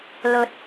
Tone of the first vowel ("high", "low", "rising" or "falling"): rising